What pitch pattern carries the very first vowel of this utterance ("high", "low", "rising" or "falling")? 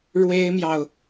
high